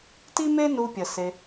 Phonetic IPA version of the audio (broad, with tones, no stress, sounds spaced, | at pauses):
t i˦ m e˦ n u˧ pʲ ə˨ s e˧